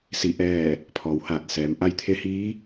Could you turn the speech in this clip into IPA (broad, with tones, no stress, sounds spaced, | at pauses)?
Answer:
s i˧˩ ʔ ɛː˧˩ | pʰ ɔː˩˧ w h aː˧˩ t̚ s ɛː˩˧ m ʔ a˧ j t̪ʰ e˧˥ h iː˧˥